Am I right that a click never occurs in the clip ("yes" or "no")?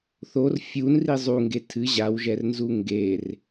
yes